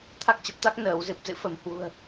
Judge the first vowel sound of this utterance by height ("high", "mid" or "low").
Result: low